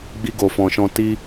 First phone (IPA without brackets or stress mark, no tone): ɡ͡b